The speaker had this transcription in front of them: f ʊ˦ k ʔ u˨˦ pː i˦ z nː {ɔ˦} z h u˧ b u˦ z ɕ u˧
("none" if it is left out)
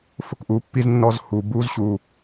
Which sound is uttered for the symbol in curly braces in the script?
ɔ˦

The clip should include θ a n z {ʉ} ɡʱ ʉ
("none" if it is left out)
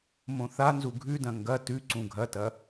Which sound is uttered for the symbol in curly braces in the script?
u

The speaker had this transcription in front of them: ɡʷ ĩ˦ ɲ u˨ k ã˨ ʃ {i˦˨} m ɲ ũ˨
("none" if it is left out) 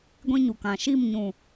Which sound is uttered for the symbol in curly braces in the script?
i˦˨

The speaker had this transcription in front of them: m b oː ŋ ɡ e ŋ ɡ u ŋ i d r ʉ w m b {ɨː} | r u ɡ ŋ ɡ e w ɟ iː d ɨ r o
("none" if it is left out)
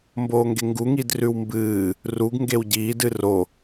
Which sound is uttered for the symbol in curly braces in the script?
ɨː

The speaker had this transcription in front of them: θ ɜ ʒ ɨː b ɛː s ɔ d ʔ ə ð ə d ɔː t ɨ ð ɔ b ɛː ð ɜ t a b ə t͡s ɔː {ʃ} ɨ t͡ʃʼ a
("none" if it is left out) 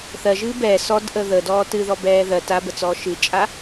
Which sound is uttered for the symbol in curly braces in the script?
ʃ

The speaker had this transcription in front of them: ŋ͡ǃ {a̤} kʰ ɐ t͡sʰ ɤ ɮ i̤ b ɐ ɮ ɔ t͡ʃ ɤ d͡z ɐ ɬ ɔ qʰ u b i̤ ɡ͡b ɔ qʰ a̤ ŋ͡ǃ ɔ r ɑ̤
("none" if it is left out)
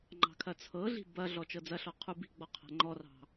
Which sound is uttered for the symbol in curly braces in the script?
ɑ̤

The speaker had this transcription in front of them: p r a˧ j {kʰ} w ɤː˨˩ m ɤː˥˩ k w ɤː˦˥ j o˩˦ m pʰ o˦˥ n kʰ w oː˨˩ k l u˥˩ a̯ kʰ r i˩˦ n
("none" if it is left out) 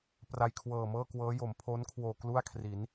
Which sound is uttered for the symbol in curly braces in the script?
kʰ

